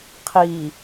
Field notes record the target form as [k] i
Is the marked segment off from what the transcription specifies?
yes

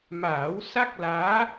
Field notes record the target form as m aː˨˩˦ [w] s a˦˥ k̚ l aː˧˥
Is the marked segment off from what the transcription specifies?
no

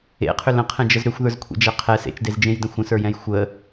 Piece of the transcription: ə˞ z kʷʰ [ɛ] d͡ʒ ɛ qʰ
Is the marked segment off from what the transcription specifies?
yes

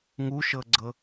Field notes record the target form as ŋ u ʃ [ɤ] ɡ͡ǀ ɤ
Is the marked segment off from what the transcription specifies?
no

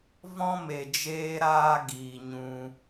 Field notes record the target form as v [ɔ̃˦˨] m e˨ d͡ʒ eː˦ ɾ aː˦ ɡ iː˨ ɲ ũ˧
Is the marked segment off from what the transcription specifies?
yes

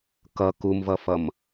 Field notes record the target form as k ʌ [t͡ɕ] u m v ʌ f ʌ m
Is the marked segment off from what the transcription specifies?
yes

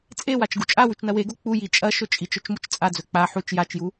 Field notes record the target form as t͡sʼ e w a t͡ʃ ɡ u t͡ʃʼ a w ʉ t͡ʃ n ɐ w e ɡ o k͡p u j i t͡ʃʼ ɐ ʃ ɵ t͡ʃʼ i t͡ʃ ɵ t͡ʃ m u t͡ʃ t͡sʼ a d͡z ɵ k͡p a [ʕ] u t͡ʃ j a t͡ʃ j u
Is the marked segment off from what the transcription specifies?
yes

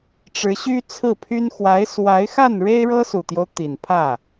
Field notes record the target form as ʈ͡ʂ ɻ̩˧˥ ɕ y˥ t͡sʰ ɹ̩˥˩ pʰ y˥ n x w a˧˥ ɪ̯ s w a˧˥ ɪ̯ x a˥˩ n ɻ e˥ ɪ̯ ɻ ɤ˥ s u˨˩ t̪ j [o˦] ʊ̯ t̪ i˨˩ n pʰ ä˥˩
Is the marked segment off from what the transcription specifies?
no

